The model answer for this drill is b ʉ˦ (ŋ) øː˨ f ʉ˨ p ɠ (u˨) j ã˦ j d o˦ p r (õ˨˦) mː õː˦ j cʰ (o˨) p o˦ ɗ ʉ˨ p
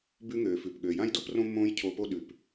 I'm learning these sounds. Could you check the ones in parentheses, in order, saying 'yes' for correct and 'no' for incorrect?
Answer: yes, no, no, no

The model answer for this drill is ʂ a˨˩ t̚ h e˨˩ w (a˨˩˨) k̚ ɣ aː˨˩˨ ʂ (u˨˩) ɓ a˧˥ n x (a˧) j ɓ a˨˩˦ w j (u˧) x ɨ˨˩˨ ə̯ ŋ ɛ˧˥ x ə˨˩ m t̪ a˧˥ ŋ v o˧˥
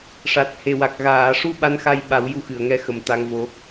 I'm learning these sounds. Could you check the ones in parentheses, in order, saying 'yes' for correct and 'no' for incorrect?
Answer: no, no, yes, yes

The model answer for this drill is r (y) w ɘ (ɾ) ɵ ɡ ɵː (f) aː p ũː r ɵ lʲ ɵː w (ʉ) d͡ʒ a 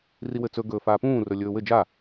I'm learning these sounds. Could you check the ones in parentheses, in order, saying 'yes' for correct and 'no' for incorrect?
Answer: no, no, yes, no

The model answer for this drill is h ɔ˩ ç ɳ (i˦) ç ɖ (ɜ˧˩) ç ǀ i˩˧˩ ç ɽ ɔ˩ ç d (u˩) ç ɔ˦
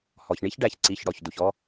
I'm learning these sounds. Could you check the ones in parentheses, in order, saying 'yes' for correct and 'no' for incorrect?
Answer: yes, no, yes

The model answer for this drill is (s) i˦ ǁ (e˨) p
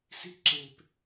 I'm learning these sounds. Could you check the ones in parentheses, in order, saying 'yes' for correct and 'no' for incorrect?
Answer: yes, yes

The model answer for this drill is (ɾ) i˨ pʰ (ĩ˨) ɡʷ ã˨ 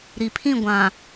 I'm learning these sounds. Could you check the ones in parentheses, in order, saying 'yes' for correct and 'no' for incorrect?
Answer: yes, no

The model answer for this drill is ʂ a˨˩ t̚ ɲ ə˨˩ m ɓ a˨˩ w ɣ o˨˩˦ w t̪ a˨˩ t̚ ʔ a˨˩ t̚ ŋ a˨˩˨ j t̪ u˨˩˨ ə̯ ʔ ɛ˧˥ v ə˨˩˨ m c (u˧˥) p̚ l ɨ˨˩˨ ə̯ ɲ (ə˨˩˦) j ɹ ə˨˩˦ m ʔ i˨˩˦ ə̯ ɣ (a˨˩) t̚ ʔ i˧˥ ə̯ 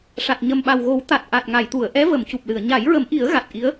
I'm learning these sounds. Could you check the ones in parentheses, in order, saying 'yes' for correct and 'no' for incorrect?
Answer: no, no, yes

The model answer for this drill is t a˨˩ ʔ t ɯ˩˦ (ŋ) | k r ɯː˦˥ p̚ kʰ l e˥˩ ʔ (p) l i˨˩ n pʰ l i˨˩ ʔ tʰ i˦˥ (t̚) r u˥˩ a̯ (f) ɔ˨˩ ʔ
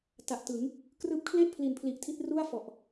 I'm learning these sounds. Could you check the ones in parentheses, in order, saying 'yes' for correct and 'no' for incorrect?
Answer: yes, no, yes, yes

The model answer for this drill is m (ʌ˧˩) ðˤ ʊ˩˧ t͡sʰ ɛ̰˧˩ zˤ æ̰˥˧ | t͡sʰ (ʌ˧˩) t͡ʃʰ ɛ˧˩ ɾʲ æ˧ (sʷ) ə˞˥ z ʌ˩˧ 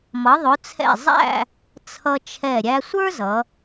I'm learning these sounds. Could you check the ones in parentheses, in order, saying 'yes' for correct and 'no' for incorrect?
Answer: no, no, yes

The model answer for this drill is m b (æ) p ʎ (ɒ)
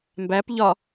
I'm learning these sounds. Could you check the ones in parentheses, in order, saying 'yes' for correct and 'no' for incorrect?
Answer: yes, yes

